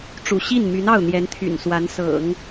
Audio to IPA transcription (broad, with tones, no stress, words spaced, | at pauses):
ʈ͡ʂṵ˨˩ɕi˥˩nmy˧˥n ɑ˥˩ʊ̯n̪jɛ˧˥nt̪ʰy̰˨˩n swa˧˥n sɤ̰˨˩˦ŋ